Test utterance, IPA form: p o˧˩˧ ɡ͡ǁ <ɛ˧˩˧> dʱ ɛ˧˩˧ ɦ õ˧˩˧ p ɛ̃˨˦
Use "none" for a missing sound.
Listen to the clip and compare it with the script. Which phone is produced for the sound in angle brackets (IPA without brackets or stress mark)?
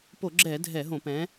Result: ɛ˧˩˧